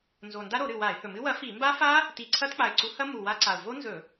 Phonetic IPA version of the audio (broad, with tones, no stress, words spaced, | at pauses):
nzo˨˩nda˦˥ɾo˧˩˧ɾɨ˨˩ wa˧˩˧ɪ̯hɵ˨˩mɨ˦˥ wɐ˨˥fi˧˩˧ mba˦˥fa˦˥ | ti˧˩˧ǀʰɐ˦˥tk͡pa˨˩ɪ̯ǀu˨˥ hɐ˦˥mu˨˩ wa˦˥ǀa˨˩ʊ̯ vo˦˥nzɵ˧˩˧